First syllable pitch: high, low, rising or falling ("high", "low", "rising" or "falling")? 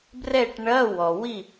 falling